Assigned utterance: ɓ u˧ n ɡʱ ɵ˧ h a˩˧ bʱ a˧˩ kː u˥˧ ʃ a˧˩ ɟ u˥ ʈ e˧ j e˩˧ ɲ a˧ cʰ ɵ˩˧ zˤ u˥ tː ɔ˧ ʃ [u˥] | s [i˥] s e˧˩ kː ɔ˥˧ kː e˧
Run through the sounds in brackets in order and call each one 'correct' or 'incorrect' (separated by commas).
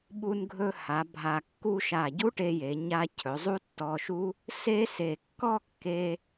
correct, incorrect